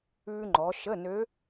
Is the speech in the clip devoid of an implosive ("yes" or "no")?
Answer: yes